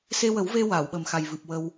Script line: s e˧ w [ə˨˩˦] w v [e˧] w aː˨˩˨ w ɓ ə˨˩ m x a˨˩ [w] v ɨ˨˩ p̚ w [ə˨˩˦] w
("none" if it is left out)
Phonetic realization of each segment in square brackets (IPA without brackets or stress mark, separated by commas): ə˨˩˦, e˧, j, ə˧